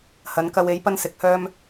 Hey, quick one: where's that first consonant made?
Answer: throat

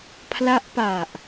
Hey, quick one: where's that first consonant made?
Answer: lips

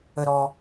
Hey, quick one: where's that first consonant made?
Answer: tongue tip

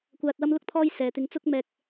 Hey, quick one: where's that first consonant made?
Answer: velum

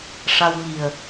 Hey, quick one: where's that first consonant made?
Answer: retroflex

